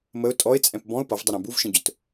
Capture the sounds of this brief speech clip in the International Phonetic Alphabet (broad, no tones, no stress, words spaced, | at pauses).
məʊ̯ tʼɔɪ̯t͡sʼɛ̃p bɔ̃ʊ̯ pʌvdˤʌɾæ̃ buvʃə̃ɟʊt